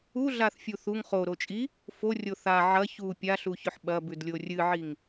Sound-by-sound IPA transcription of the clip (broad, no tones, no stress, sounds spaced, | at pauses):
u ɮ a θ fʲ u θ u ŋ χ o ɾ o t͡ʃʼ i | f o rʲ o θ a ʕ ɐ ç u pʲ a ɬ u ç ɵ ħ ɓ ɐ b ʉ d lʲ o rʲ ɨ ʕ i ŋ